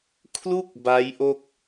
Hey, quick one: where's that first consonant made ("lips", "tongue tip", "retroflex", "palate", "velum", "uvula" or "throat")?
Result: velum